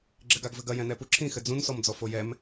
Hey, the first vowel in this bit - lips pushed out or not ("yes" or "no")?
no